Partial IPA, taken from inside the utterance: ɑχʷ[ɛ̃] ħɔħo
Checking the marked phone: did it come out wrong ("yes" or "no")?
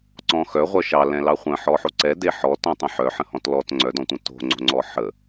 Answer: yes